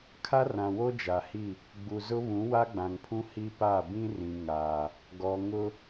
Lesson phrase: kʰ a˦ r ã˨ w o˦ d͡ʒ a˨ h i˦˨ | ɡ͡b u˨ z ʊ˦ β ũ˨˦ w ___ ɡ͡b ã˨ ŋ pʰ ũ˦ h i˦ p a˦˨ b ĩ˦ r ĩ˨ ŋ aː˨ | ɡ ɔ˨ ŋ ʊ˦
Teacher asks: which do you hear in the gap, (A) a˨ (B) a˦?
B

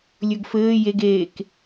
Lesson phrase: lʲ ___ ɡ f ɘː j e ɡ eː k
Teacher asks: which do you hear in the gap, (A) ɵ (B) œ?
A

